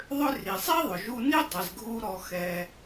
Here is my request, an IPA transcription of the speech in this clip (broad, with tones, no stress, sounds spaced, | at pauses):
ðˤ ʏ˥ r i˩ sˤ e˥ ðˤ ʏ˩ ʒ u˧ n i˥ dˤ ɛ˩ z ɡʱ u˧ ɾ ɔ˧ x ɛ˧